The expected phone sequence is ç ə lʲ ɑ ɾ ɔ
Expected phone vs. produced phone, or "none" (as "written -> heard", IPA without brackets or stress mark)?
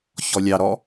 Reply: ə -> ɔ